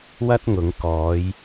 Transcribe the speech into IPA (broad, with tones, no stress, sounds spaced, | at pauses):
w ɐ˥ t̚ ŋ ʊ˨˧ ŋ k ɔː˨˧ j